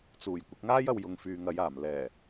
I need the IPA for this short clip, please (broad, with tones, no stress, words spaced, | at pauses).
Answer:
t͡suː˨˩j kʷɪ˨˥k̚ŋaː˥jɐ˧w jʊ˨ŋfyː˨ŋɐ˨˧jaː˨˩m lɛː˨˩